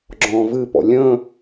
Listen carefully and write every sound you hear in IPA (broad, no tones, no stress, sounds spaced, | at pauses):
ɡ͡ǁ ɔ̃ː v ɨ p ɔ̰ lʲ ə̃